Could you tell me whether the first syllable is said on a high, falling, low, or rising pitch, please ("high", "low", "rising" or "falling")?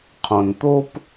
low